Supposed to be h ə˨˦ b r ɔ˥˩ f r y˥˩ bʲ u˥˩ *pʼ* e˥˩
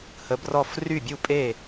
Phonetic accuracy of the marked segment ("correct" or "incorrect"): correct